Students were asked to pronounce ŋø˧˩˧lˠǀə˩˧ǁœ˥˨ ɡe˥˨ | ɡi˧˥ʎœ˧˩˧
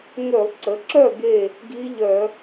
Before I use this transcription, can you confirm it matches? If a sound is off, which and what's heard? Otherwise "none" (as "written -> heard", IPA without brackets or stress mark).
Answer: none